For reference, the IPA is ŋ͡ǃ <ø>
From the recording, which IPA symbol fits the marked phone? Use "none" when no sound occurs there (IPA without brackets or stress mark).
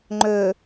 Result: ø